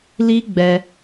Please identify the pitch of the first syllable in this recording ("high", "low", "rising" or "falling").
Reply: high